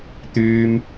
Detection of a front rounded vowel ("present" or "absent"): present